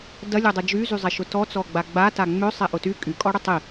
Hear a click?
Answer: no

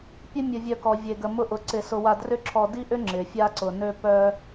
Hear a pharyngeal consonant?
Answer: no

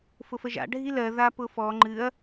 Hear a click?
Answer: yes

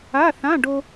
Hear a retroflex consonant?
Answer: yes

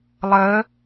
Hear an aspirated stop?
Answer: no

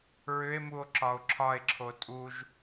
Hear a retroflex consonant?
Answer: no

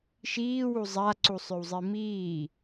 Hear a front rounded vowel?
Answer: yes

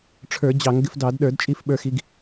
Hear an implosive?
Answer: yes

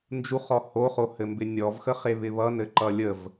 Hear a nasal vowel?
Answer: no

